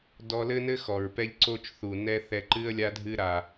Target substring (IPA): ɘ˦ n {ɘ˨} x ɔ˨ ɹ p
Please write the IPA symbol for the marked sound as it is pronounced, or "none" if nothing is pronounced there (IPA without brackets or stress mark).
ɘ˦